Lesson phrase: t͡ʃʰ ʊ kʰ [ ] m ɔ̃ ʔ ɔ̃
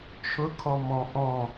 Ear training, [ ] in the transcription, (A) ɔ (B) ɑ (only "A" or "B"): A